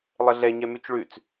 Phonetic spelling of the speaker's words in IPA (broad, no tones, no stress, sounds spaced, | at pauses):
lˠ ə ɮ ɛ ɲ ɛ m ʉ t͡ʃ ɭ ʉ t͡s